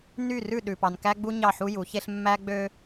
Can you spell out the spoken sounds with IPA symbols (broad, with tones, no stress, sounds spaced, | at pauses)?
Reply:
n y˦˨ r ʉ˦˨ ɗ ʉ˨ p ɑ˨ n k æ˦ ɡ͡b u˦ ɲ ɑ˦˨ ħ u˦ j u˨˦ ç e˦ ɬ mː æ˦ ɡ͡b ø˦